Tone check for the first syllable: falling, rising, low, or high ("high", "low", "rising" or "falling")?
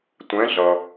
rising